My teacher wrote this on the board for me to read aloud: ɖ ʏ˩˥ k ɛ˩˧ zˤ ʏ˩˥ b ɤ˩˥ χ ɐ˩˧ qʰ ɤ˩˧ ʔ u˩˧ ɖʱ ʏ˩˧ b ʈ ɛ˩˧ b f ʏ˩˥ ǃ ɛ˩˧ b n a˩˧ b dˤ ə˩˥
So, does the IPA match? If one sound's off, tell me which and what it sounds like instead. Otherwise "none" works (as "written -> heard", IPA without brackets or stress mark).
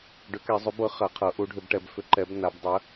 none